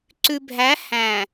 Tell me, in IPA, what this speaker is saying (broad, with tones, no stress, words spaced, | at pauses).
ǀʉ˨bʱæ˨˦ hæ̃˨